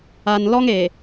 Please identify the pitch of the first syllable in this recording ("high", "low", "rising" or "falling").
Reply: low